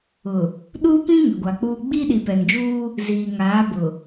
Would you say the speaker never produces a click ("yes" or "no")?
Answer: yes